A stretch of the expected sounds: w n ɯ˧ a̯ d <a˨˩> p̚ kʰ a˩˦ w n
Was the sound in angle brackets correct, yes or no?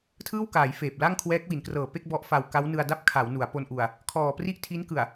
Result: no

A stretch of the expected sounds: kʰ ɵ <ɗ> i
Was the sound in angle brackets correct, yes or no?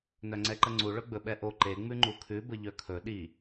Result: yes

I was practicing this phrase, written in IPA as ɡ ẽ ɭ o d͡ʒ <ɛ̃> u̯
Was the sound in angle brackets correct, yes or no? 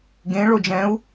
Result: yes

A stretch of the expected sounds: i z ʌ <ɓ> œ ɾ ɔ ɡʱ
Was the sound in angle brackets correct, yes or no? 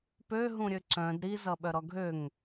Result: yes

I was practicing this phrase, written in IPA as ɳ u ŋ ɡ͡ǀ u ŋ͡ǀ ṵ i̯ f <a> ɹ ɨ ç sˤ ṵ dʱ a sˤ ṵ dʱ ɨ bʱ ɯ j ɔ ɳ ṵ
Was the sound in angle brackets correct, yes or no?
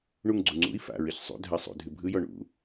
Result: no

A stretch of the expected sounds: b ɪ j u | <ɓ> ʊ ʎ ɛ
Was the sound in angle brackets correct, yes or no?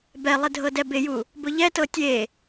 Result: no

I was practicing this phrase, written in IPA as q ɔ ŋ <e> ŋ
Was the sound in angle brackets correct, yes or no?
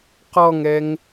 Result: no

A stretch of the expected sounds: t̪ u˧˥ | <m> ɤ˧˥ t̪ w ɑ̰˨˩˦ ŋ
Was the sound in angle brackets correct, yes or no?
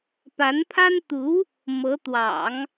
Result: yes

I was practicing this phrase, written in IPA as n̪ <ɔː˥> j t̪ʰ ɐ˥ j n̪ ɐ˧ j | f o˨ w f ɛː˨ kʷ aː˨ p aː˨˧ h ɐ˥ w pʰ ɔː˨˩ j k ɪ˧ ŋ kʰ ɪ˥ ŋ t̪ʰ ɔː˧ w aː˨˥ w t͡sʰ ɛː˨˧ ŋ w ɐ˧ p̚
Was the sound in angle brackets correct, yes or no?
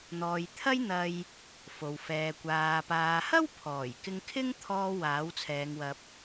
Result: no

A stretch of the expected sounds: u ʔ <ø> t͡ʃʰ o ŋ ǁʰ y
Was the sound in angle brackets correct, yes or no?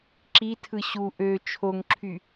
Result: yes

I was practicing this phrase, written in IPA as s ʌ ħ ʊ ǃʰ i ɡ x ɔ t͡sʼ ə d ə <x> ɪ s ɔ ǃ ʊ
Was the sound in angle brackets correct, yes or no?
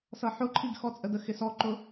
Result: yes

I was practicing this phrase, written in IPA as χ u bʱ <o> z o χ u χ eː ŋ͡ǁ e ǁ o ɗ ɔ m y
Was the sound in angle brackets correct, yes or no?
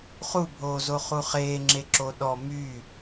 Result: no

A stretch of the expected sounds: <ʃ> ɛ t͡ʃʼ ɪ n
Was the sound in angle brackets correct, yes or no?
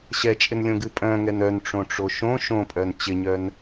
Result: no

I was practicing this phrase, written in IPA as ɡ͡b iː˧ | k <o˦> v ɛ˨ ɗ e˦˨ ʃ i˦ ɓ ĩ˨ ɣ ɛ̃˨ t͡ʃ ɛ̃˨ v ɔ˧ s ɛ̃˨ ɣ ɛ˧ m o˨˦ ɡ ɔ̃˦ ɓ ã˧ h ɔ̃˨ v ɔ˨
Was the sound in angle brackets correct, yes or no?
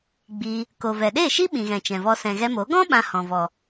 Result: no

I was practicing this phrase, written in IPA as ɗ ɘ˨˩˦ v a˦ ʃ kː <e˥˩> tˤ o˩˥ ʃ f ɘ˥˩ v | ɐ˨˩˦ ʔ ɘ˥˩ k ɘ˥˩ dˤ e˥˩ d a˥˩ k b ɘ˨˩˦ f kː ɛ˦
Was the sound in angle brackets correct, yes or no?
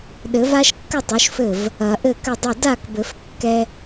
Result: no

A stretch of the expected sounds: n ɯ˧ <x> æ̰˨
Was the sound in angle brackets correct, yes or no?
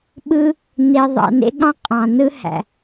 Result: no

